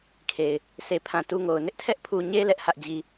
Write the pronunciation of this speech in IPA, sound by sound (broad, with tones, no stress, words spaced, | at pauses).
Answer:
kʰe˨ɪ̯ | se˨pʰã˨ tu˦ŋo˨ʊ̯ nɪ˦ʔtʰɛ˦ʔpʰu˨ɲe˦ lɛ˦ʔhä˦ʔd͡ʑi˦